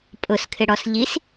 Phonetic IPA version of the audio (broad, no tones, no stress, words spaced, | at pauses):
pʼʊskʰɪɽɔs ʎis